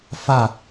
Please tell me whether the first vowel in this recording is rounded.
no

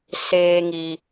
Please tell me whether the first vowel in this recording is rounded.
no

